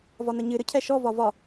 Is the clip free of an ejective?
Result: yes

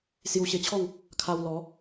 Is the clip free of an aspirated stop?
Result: no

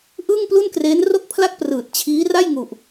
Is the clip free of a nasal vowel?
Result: yes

